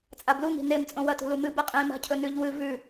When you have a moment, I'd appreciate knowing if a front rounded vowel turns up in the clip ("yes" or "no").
no